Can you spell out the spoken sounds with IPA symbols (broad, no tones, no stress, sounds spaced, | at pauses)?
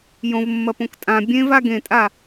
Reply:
j õ v mː ɐ p õ k tʼ ã bʲ ẽ v a ɡ ẽ tʼ a